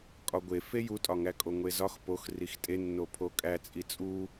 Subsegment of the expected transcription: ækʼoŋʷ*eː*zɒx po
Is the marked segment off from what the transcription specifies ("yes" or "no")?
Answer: yes